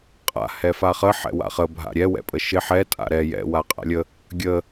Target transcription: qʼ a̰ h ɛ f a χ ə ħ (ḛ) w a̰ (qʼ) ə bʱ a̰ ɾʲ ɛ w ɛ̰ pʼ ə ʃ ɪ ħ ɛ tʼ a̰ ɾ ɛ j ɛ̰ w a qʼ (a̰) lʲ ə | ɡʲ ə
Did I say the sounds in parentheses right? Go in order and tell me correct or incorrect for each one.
incorrect: ɛ̰, incorrect: χ, correct

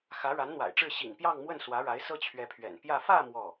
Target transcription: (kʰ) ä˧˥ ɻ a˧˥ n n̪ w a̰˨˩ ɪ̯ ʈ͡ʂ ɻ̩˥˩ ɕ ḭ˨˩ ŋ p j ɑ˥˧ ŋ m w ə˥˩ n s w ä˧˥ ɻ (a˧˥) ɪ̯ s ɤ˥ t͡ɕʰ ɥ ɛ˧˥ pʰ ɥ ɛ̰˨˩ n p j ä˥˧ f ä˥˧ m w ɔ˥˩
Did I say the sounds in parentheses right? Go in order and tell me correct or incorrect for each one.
incorrect: x, correct

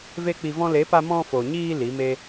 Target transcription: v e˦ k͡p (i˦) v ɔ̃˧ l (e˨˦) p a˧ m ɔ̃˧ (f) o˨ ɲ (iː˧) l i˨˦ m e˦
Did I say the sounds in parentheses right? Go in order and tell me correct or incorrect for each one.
incorrect: i˧, correct, correct, correct

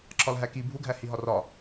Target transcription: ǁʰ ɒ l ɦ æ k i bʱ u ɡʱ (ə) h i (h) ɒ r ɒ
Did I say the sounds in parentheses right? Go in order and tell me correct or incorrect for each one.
incorrect: æ, incorrect: ɦ

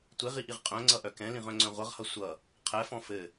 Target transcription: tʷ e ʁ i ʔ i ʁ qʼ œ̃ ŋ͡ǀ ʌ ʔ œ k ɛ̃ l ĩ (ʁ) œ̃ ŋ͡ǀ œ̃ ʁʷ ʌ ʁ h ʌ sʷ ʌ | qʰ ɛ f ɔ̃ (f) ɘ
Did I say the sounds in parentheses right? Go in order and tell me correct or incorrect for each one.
correct, correct

